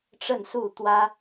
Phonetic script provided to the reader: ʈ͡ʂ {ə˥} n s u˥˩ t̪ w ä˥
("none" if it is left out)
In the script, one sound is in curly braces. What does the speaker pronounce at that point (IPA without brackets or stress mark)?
ə˥˧